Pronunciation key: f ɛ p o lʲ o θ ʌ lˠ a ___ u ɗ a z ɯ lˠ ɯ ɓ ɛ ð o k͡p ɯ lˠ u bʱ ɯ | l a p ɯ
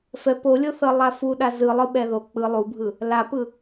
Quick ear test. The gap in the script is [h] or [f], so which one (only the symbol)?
f